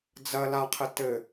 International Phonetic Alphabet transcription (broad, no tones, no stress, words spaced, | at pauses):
d͡zɐ laqʰɘ tɘ